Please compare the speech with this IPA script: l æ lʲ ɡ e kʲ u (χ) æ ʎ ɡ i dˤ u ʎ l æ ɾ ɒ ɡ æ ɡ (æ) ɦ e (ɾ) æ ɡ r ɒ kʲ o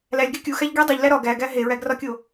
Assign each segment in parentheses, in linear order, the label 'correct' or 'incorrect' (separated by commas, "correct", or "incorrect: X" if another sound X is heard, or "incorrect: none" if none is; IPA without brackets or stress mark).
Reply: incorrect: x, correct, incorrect: ɹ